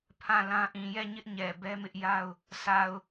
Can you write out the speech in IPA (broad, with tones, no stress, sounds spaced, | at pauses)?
pʰ ã˦˨ l ã˦ ʔ ĩ˨ j ɛ˦˨ ɲ ɪ˦ ʔ ɲ ɛ˨ b ɛ˦ m ɪ˦ ʔ j a˦ ʊ̯ | s a˨ ʊ̯